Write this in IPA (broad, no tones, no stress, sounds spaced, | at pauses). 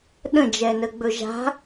ɗ ə̃ d͡ʒ ɛ n ə ɡ͡b ɵ ʒ a̤